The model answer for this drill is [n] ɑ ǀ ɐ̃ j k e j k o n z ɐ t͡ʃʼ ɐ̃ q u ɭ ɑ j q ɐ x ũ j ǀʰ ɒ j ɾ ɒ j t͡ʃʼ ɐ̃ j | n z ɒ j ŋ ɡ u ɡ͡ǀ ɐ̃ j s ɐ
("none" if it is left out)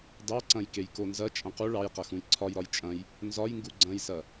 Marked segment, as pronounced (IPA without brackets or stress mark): d